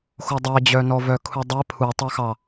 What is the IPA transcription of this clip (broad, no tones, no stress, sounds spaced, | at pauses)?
x o dˤ ɛ d͡ʑ œ n ɔ v œ kʰ u dˤ e pʰ u tˤ œ x ɑ